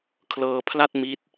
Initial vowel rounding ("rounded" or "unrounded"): unrounded